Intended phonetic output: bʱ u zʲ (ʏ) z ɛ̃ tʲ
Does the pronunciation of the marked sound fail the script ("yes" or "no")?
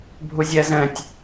yes